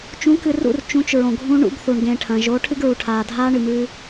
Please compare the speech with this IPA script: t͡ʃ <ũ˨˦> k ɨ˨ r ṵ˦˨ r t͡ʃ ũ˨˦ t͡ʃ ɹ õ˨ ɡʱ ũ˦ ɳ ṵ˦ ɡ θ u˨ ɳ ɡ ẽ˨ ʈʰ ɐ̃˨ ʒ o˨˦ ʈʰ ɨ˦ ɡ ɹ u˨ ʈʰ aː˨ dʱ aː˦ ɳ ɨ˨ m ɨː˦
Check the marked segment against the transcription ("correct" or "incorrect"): correct